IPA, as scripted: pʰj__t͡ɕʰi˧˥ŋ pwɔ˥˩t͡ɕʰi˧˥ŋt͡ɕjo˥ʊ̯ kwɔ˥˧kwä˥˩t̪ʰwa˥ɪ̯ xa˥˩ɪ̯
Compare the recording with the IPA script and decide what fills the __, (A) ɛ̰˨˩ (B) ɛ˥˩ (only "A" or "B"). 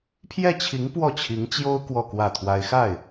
B